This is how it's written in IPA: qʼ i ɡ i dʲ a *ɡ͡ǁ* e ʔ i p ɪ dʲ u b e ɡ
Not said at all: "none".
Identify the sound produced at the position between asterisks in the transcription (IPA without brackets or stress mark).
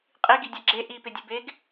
ɡ͡ǁ